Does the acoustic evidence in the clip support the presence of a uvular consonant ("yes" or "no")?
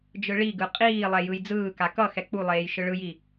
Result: yes